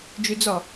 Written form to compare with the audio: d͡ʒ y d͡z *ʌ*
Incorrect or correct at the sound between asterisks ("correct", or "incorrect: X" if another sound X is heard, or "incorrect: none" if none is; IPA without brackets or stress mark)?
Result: incorrect: ɒ